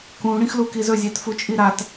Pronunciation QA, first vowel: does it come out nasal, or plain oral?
nasal